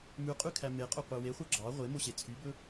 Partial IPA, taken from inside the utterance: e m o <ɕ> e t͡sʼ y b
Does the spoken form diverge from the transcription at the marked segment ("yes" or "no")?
no